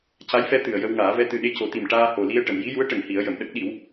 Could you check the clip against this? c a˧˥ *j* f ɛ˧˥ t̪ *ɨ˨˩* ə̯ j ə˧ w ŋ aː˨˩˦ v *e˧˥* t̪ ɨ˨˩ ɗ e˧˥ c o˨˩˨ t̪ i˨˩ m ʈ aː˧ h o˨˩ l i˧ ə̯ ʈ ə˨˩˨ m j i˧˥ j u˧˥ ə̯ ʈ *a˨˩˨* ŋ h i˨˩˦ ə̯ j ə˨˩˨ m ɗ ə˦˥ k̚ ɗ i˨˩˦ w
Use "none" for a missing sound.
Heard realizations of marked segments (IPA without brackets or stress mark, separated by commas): j, ɨ˨˩, ɛ˧˥, ə˨˩˨